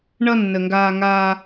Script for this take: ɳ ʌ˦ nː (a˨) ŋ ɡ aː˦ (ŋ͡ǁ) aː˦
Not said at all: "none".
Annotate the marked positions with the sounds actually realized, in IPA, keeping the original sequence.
ə˨, ŋ

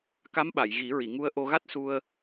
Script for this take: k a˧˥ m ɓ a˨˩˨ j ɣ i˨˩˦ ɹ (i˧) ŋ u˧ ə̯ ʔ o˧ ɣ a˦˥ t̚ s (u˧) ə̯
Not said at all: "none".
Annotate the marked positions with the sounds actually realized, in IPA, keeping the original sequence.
i˨˩˨, u˧

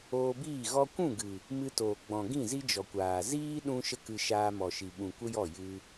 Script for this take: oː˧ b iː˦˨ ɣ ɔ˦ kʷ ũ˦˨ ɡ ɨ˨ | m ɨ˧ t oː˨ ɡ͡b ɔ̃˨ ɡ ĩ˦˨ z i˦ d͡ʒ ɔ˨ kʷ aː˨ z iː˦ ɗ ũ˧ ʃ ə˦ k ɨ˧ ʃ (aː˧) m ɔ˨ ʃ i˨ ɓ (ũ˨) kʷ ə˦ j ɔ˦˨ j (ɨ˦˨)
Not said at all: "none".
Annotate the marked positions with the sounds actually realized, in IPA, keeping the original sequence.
aː˧, ũ˨, ɨ˧

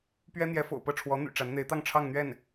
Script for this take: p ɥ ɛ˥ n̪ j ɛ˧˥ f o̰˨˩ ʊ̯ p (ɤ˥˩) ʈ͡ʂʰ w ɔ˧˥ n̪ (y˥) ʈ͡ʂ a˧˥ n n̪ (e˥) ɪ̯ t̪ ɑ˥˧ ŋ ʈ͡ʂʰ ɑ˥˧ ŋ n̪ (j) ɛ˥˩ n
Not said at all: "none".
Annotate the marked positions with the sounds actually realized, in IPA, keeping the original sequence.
ɤ˥˩, y̰˨˩, e˧˥, ɥ

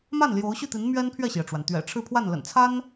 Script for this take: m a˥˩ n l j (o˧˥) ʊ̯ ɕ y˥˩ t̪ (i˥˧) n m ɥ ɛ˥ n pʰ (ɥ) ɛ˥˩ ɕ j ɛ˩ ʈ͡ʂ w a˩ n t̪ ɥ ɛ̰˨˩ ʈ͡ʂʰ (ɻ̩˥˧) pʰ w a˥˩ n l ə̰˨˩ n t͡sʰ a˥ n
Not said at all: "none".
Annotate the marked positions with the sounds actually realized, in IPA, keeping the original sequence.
o˧˥, i˧˥, ɥ, ɻ̩˥˧

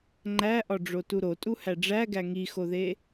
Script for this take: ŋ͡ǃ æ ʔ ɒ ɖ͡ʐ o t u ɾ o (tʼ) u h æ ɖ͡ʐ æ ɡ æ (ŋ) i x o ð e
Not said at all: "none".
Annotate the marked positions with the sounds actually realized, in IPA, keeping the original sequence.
tʼ, ŋ

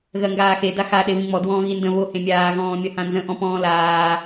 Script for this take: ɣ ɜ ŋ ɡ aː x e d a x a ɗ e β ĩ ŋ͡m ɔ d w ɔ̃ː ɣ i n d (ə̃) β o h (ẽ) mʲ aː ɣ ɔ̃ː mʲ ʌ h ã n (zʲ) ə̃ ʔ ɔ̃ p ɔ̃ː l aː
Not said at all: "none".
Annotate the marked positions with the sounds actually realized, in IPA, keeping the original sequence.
ə̃, ẽ, z

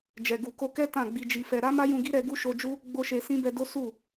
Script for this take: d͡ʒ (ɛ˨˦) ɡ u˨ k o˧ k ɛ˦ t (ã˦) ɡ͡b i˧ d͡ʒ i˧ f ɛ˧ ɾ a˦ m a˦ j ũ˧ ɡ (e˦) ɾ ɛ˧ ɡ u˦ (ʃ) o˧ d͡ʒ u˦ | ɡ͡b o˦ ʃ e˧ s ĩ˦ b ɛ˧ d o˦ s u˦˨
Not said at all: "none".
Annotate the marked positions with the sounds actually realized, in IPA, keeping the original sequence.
ɛ˨, ã˦˨, i˦, ʃ

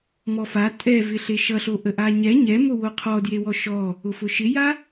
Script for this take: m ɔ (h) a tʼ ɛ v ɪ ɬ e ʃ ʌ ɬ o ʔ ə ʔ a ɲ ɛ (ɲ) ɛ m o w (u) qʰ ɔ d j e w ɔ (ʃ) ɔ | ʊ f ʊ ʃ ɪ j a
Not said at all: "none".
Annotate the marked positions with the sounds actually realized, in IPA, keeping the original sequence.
f, ɲ, o, ʃ

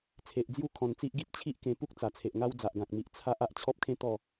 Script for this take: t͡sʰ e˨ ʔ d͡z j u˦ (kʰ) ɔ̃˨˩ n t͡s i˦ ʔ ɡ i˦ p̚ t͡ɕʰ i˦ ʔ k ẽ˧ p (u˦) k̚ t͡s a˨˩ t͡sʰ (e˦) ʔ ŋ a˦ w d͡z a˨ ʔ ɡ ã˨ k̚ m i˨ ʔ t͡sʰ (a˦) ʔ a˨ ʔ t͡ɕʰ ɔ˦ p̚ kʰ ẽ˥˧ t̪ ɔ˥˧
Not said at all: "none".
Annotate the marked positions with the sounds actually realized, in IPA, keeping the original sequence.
kʰ, u˦, e˨, a˦

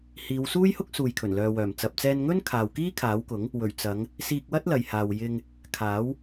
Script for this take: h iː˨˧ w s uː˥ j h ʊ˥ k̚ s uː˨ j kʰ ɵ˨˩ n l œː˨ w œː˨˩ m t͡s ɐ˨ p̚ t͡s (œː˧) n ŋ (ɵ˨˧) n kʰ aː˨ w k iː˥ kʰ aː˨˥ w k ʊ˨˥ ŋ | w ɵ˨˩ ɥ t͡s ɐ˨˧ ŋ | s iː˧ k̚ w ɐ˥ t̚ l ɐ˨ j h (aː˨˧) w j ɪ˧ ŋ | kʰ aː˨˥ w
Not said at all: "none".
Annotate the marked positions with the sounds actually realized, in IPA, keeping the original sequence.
ɛː˧, ɵ˥, aː˨

